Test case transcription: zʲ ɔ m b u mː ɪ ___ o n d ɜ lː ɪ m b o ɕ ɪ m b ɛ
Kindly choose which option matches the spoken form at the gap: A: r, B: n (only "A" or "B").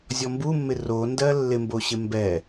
A